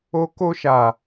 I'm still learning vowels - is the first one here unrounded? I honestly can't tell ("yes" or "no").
no